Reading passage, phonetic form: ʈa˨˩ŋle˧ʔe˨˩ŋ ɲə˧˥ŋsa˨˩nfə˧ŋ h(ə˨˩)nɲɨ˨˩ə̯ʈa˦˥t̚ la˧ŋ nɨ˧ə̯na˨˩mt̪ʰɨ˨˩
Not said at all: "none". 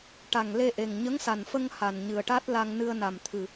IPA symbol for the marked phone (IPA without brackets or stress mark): a˨˩